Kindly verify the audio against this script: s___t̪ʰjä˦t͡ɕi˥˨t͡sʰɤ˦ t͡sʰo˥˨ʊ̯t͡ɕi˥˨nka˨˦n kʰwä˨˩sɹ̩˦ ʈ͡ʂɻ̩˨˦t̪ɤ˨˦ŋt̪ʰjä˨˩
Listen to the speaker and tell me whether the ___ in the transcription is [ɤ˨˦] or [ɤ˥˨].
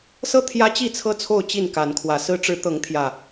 ɤ˥˨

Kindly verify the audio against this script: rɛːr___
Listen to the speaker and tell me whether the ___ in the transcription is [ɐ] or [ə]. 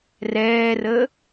ə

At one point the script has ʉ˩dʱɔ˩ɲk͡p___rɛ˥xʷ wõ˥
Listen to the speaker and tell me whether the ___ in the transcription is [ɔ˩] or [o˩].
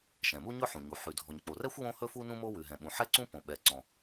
o˩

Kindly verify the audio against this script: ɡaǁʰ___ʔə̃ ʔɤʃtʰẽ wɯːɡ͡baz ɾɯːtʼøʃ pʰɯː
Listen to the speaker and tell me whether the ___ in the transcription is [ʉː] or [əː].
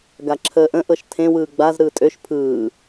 əː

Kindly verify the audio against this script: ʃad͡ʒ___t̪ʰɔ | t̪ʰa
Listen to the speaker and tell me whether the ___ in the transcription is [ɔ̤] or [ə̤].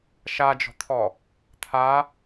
ɔ̤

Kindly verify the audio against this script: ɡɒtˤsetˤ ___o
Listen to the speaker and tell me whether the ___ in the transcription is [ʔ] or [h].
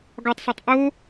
ʔ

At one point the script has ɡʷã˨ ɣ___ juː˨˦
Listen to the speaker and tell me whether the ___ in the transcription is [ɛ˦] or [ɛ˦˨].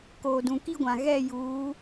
ɛ˦˨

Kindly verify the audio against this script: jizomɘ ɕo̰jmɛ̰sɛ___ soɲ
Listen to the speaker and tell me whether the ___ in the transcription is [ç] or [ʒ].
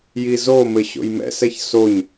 ç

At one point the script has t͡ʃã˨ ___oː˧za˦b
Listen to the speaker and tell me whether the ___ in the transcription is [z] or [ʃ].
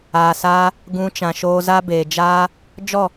ʃ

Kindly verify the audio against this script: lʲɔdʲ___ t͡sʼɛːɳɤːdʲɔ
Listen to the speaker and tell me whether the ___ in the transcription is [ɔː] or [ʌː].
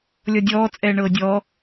ɔː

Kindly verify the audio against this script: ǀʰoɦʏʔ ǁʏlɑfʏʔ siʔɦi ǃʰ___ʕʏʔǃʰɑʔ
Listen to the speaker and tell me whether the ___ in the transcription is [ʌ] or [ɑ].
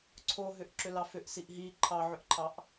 ɑ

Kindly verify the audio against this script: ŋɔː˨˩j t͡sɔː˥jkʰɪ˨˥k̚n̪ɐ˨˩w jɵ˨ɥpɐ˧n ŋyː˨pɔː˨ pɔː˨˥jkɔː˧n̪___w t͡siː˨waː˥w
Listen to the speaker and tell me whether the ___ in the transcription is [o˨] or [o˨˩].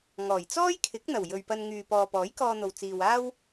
o˨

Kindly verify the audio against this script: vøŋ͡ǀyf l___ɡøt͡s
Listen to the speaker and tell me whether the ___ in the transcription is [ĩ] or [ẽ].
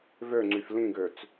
ĩ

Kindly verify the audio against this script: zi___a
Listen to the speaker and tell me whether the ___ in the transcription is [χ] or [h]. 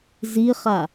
χ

